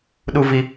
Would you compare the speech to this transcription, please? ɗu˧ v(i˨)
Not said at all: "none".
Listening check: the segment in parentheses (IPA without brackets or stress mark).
i˨